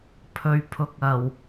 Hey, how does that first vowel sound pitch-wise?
low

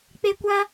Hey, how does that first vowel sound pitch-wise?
high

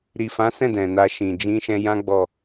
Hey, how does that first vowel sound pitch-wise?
low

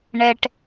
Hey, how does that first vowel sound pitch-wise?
low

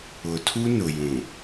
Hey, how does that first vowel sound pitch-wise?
low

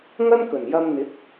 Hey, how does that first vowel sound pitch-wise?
high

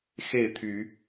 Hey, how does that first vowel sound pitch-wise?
falling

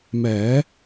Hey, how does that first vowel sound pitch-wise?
rising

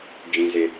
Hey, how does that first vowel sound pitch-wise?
high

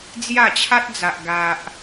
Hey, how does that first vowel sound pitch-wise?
falling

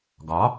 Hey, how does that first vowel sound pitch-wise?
rising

